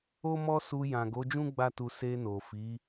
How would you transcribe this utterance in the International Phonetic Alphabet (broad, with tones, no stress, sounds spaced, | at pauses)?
o˦ m ɔ˦ s u˧ j ã˨ ɡ o˨˦ d͡ʒ ũ˦ ɡ͡b a˦ t u˧ s e˧ n o˨ f i˨˦